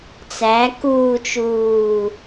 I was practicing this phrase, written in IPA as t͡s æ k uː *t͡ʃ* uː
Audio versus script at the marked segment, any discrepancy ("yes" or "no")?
no